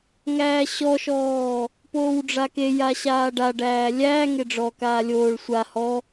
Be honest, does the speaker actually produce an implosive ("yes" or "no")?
no